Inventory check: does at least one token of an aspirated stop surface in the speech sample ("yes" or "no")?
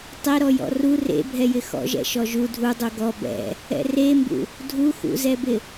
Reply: no